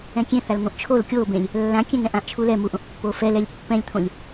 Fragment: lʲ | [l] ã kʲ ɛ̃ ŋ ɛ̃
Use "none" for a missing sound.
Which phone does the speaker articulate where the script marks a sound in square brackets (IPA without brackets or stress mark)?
lː